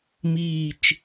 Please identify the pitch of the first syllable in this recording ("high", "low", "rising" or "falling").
low